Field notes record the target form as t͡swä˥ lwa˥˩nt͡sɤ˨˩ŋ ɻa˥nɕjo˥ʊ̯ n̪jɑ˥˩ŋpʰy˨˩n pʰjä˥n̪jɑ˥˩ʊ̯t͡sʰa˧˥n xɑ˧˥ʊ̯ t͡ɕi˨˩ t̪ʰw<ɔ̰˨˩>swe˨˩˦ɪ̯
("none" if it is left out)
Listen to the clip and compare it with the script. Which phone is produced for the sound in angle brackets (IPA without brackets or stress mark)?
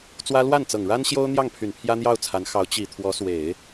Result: ɔ˧˥